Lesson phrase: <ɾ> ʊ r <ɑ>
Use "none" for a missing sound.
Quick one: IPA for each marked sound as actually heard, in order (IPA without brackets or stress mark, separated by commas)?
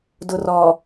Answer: d, ɔ